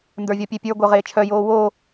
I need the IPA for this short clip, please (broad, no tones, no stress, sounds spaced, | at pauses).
n d ə˞ vʲ ɔ pʲ e pʲ ə˞ ɡʷ œ ʁ eː t͡ʃʰ œ j oː w o